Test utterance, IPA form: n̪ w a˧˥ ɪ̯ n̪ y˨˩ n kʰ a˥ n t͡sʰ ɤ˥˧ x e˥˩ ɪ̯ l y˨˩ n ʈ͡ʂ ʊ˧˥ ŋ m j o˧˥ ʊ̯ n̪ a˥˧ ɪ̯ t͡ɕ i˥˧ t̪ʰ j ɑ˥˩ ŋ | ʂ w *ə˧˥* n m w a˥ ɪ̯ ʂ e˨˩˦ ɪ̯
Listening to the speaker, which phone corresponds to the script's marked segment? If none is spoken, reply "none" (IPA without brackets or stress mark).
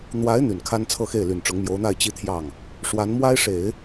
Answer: a˧˥